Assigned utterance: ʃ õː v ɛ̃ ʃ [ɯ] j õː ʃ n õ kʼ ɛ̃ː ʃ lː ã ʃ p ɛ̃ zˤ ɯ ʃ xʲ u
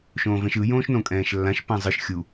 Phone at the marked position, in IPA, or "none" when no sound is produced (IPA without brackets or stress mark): ɯ